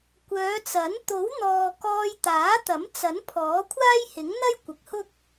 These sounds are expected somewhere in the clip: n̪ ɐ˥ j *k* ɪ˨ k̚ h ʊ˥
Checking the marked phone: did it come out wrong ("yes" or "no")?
yes